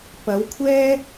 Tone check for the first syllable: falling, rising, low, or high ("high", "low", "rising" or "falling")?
rising